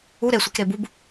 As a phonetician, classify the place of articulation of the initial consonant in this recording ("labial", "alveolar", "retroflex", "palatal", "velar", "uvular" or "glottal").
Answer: alveolar